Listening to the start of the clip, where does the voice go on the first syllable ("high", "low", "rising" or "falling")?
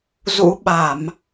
rising